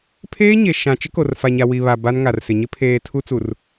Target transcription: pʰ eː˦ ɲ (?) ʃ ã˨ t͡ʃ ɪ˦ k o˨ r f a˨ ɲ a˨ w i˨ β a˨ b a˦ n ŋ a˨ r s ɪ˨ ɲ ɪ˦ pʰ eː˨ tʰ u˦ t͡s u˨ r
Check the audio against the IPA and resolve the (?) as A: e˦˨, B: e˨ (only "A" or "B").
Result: B